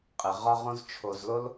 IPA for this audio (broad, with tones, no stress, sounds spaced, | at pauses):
qʼ ɘ˨ ʁ ɒ˦ ʁ õ˦ z t͡ʃʰ o˧ z l o˦ l